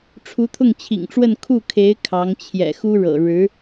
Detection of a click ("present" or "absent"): absent